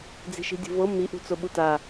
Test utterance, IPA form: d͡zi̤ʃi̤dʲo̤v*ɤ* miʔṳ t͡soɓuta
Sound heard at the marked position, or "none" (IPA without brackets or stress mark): ɤ